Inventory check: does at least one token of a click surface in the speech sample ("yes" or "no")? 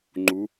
yes